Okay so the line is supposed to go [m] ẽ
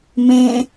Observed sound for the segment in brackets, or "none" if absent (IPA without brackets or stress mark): m